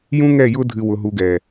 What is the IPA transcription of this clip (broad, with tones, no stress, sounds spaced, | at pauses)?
j ũ˦ ŋ ɛ˦˨ j ʊ˦ dʱ ɨ˨ w ʊ˨ ɦ u˨ ɡ ɛ˨